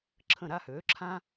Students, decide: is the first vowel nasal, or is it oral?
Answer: nasal